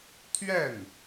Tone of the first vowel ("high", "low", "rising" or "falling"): falling